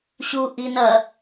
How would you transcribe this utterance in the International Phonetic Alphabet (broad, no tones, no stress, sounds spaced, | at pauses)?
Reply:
ɕ u ʔ i n ɐ